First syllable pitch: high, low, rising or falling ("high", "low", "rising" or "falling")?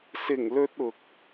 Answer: low